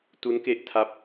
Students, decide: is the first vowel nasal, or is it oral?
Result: oral